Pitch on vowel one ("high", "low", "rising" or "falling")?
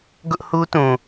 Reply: high